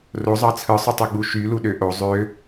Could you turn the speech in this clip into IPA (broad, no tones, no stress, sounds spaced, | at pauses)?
r o zˤ ɑ t͡sʰ ɯ sˤ u tˤ ɯ ɡ͡b u ʃ y l u ɗ ø ʔ o zˤ ø